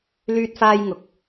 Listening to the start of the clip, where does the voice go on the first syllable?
high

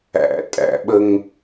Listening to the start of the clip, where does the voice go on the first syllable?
low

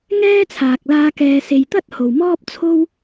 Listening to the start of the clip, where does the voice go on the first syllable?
high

